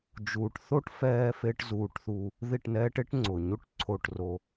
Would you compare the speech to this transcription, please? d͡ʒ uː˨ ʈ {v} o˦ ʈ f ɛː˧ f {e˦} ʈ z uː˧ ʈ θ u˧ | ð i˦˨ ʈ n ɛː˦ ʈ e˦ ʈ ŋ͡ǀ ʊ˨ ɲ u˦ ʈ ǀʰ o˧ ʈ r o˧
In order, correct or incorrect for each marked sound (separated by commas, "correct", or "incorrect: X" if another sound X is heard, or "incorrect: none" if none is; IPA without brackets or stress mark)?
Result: incorrect: θ, correct